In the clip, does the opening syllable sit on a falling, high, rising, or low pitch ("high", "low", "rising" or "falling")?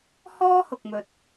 high